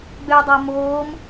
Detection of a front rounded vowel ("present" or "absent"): present